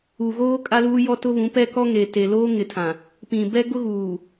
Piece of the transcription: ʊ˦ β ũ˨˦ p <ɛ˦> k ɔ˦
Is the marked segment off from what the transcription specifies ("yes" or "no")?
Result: no